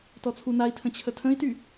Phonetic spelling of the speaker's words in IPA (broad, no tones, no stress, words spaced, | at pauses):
tɔt͡sʰunai̯tʰə̃ t͡ɕʰətʰə̃i̯ty